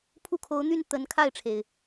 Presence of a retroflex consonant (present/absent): present